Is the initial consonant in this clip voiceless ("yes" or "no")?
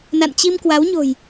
no